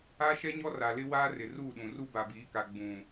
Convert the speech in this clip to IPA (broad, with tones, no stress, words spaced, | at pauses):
a˦ʃɛ˦ɲɔ˦ ra˨lɪ˦waː˦ rɪ˨ruː˦˨ɗũ˨ ru˦ba˨biː˨˦ka˨ ɡ͡bũ˨